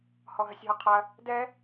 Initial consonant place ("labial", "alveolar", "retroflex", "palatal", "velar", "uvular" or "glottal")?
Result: glottal